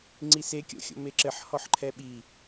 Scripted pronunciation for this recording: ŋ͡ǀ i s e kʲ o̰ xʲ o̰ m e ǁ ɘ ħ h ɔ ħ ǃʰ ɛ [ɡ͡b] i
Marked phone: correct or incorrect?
incorrect: ɓ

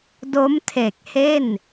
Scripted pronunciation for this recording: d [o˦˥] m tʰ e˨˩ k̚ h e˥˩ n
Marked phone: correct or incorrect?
correct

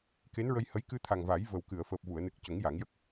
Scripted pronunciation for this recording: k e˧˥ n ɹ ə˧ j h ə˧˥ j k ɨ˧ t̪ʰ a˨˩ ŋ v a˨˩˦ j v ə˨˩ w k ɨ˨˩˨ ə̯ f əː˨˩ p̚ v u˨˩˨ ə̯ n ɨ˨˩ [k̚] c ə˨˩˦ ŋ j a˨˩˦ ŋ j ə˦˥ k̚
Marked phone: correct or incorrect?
correct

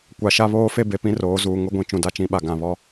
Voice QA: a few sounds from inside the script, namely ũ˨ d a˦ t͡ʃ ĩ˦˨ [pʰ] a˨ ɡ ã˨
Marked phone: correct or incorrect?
incorrect: ɓ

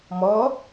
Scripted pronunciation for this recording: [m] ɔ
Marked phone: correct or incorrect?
correct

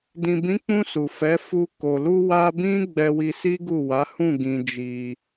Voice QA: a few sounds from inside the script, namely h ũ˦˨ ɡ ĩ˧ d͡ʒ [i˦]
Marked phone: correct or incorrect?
incorrect: i˧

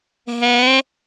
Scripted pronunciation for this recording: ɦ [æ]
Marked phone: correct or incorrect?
incorrect: ɛ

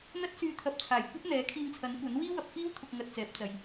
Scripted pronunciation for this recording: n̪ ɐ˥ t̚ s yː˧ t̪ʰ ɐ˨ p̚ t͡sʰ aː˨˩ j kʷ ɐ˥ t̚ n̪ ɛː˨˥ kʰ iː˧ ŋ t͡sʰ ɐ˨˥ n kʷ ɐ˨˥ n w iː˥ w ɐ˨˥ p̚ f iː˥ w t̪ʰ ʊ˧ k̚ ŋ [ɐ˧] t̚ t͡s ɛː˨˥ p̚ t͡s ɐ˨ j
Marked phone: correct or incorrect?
correct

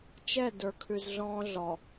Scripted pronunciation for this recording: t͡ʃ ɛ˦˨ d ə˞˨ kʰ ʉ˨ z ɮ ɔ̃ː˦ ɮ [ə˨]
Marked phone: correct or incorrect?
incorrect: ɔ˨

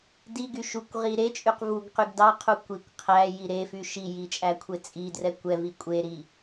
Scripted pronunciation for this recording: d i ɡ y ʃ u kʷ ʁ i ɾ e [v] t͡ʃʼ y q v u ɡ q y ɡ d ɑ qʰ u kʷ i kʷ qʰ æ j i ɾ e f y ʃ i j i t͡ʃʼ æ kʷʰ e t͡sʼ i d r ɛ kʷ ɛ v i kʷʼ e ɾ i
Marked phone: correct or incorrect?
incorrect: none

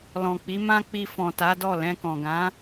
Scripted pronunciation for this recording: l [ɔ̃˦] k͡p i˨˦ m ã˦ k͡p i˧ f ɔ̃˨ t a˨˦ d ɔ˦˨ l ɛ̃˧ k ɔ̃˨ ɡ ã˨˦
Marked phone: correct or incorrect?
incorrect: ɔ̃˨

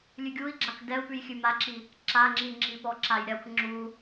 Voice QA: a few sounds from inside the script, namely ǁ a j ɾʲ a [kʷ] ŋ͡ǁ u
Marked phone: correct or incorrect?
correct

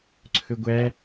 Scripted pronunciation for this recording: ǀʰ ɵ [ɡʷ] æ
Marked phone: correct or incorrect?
correct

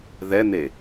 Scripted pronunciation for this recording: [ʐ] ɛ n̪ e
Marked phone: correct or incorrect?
incorrect: ð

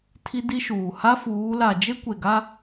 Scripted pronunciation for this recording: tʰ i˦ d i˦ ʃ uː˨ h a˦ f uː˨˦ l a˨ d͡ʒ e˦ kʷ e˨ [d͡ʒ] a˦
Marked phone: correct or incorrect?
incorrect: ɡ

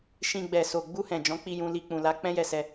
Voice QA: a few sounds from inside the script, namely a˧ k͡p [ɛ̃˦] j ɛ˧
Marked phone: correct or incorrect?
correct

